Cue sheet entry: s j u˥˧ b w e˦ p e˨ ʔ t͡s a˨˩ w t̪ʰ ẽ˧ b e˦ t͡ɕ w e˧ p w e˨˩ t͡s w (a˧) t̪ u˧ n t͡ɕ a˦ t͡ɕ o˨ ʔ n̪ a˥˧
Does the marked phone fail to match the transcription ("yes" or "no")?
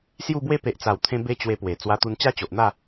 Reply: no